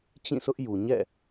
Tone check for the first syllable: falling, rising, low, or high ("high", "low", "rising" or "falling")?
falling